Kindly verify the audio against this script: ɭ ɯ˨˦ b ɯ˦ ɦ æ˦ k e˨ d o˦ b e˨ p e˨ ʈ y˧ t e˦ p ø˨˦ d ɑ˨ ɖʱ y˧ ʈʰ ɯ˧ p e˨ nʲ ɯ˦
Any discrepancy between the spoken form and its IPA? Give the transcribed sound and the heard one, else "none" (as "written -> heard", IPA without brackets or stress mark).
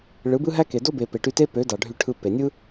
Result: none